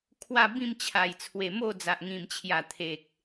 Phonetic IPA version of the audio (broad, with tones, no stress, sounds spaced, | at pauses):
kʰ w a˥˧ b ĩ˥˧ m t͡ɕʰ a˨˩ j t͡sʰ w e˨˩ m o˥˧ d͡z a˨ ʔ ŋ ĩ˨˩ m t͡ɕʰ j a˨˩ t̪ʰ e˨ k̚